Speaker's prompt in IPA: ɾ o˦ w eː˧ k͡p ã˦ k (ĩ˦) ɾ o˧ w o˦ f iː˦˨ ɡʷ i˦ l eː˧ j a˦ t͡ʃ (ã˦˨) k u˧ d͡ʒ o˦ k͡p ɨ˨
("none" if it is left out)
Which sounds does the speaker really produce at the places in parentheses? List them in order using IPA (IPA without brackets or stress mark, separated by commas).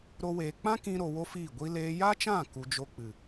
ĩ˦, ã˦˨